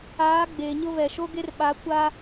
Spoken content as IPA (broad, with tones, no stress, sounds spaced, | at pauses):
aː˨˦ ɡ͡b eː˨ ɲ ʊ˦ v ɛ˨ ʃ o˦ ɡ e˦ r ɓ a˨˦ kʷ a˦